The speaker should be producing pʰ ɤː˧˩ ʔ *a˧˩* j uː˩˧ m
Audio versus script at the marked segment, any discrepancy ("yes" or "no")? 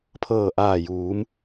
yes